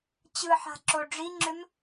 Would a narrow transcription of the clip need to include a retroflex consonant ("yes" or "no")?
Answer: yes